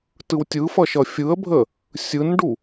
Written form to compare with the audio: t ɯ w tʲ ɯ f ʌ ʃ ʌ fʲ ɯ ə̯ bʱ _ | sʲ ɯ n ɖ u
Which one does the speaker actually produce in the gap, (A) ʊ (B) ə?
B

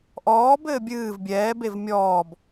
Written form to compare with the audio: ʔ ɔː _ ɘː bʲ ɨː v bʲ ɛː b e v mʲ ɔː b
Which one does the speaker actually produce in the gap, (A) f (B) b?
B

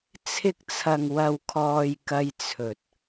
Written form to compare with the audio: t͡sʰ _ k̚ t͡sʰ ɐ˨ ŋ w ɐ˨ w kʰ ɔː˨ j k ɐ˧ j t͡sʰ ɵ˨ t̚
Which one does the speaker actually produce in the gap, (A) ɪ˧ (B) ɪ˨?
A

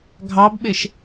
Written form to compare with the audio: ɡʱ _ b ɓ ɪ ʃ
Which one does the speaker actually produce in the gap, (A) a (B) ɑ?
B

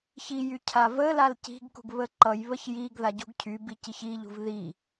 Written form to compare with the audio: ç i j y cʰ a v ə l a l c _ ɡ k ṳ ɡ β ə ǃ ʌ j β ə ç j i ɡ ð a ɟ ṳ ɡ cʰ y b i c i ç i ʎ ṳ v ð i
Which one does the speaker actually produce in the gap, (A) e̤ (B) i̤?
B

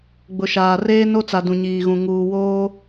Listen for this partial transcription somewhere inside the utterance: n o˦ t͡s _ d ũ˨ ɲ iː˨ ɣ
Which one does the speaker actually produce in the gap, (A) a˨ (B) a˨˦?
A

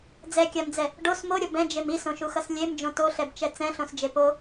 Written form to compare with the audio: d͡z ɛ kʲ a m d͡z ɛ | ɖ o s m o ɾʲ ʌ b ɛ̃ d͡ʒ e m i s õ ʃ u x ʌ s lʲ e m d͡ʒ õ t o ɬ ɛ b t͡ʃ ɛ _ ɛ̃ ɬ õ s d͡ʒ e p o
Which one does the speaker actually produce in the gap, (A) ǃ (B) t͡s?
B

